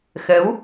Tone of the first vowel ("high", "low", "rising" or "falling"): rising